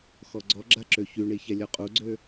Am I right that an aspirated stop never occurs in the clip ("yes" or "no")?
yes